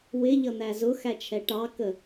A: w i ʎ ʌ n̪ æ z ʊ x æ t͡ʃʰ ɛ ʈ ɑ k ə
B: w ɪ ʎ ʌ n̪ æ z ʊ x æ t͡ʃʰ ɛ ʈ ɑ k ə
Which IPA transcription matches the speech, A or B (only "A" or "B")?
B